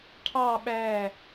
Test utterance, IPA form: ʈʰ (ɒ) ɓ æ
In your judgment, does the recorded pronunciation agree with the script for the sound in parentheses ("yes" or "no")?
no